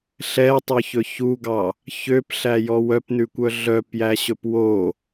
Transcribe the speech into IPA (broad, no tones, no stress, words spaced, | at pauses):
ɬɛtˤɵçɵ çuɡɑ | çøpɬæjɔ wœpnʉkʷœ ɮœpjæɕɵp wo